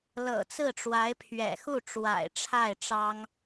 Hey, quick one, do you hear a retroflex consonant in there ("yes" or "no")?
yes